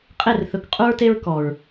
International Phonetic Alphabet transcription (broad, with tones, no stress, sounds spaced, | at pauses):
qʼ e˦˨ r θ ɵ˨˦ k qʼ u˧ ɹ t e˧ ɹ k ɔ˨ ɹ